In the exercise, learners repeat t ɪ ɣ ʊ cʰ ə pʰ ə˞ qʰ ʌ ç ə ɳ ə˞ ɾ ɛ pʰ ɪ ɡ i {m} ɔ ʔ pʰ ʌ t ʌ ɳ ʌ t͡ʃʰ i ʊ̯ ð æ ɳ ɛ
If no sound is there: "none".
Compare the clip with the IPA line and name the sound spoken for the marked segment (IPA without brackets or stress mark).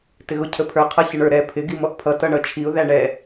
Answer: m